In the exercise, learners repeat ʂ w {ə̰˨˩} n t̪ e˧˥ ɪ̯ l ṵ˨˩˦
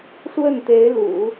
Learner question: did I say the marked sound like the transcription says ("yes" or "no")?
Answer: no